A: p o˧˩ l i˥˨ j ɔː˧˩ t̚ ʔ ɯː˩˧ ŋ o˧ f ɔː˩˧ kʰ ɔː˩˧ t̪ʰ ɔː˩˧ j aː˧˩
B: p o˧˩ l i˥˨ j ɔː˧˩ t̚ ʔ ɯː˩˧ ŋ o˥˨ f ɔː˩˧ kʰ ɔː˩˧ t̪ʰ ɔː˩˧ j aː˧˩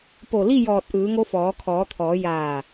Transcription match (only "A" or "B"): A